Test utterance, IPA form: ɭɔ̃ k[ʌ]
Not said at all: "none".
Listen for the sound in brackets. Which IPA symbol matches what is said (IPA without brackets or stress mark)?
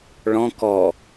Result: ɔ